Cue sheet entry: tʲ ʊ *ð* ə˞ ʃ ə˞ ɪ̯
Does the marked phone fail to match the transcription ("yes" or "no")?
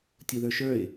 no